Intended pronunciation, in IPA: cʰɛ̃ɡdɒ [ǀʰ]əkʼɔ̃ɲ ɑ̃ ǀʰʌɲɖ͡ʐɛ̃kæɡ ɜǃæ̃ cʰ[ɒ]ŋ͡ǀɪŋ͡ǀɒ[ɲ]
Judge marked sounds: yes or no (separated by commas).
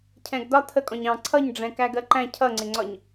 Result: no, no, yes